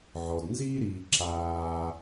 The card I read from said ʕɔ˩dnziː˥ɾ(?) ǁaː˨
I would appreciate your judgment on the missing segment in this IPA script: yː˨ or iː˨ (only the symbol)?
iː˨